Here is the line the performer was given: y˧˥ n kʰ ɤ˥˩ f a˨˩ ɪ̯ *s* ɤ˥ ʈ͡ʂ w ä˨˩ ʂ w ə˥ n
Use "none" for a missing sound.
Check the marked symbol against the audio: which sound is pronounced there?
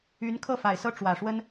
s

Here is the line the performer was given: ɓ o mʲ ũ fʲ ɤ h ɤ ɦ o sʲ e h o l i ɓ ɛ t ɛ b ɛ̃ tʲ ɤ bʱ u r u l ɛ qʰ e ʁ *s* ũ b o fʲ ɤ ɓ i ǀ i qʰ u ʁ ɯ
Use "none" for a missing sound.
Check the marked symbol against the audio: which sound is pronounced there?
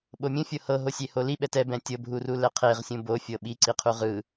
sʲ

